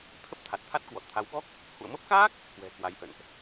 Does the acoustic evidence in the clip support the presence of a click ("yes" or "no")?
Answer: no